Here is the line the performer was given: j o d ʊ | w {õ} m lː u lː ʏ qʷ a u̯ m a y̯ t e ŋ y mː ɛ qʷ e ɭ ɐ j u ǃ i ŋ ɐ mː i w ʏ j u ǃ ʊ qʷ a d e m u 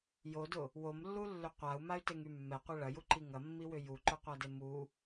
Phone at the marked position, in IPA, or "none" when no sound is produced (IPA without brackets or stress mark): o